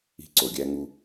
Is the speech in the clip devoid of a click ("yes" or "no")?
no